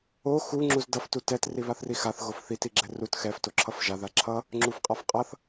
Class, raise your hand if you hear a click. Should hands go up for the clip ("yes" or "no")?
yes